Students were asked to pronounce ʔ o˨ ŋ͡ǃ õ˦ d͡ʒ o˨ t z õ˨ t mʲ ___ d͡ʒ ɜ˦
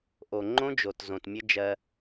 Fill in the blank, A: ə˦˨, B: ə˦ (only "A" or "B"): B